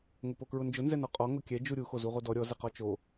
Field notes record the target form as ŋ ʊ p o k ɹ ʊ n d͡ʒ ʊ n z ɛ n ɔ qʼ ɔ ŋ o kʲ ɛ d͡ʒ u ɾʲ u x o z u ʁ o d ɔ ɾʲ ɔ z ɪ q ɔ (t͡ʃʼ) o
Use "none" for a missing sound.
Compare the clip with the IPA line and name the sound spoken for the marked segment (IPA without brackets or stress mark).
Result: t͡ʃ